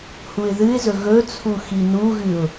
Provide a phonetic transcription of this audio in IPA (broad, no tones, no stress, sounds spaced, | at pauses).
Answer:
h u ɪ̯ ð ɨ ɪ̯ z ɵ ɣ ɵ t͡sʰ u x i n u ɣ ɨ ʊ̯